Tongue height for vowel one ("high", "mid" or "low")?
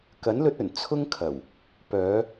low